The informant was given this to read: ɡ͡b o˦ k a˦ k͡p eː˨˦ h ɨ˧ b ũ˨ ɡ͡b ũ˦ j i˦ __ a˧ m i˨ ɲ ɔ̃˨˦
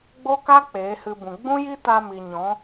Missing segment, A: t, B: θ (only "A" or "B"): A